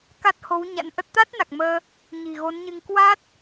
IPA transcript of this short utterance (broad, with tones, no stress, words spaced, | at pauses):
ka˦˥t̚ho˨˦wɲa̰˧˥nʔə˦˥t̚ t̪a˦˥t̚na˨˩k̚ məː˧ | ɲi̤˨˩ɣo˨˦nɲɨ˧ŋ kwa˦˥t̚